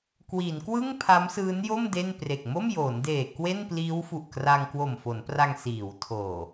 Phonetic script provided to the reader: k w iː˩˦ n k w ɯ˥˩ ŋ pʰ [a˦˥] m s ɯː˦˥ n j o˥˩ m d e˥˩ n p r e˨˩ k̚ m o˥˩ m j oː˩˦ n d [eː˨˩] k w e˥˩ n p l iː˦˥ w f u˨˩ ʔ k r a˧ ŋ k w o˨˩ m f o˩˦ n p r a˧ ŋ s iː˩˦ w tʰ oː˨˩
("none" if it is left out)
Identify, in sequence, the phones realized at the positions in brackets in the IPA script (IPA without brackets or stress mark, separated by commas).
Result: a˦˥, eː˨˩